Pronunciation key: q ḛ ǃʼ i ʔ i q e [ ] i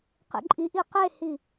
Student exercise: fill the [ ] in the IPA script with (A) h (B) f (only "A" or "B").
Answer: A